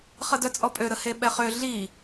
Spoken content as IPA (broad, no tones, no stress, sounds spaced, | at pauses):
χ ə d œ t͡sʼ ɔ pʼ ø ɾ ə h e ɓ ɛ χ ø ɮ i